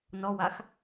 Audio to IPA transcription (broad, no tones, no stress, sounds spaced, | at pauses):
n ɔ w a x